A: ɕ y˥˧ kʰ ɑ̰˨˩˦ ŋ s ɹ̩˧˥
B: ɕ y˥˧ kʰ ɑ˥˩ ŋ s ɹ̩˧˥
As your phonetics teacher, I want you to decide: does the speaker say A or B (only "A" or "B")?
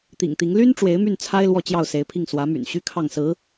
B